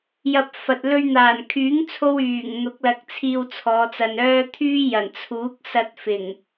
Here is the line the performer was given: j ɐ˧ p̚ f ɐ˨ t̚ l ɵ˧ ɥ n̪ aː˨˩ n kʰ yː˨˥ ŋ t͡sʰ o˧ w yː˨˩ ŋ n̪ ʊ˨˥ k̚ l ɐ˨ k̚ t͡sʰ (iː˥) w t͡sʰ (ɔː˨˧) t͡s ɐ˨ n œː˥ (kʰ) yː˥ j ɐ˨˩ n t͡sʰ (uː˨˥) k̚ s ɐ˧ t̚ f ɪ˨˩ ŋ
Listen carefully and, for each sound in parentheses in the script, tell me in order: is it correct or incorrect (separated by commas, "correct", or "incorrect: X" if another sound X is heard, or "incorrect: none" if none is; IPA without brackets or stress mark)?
incorrect: iː˧, correct, incorrect: t̪ʰ, correct